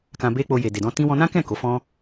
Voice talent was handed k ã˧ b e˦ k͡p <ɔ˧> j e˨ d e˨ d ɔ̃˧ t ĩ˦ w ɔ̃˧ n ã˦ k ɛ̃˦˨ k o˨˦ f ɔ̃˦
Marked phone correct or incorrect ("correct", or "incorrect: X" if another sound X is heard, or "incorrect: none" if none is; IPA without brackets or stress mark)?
incorrect: o˧